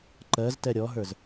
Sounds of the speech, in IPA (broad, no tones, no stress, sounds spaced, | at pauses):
ǃ ɜ z t ɛ ɾʲ ɔ ɦ ə˞ z